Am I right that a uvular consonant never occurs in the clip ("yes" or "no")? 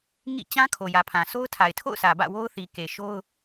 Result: yes